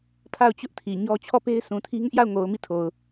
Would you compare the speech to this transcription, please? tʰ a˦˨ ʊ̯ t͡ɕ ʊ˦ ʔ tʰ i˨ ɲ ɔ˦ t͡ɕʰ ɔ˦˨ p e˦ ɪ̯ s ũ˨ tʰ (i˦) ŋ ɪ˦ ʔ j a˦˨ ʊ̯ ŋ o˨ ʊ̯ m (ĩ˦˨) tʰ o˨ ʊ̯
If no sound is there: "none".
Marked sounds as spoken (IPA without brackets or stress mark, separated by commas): i˦, i˦˨